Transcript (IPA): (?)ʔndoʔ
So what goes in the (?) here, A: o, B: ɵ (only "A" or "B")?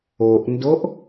A